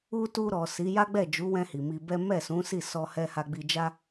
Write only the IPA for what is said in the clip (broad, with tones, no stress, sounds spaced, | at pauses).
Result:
u˧ t u˧ ɾ ɔ˨ s i˨˦ j a˦ ɡ͡b ɛ˦˨ d͡ʒ u˨˦ w ɛ̃˧ h i˨ m i˧ b ɛ˦ m ɛ˦˨ s ũ˨˦ s i˦˨ s ɔ˧ h ɛ˧ h a˧ ɡ͡b i˧ d͡ʒ a˦